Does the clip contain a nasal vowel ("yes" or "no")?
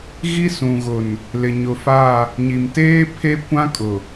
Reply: yes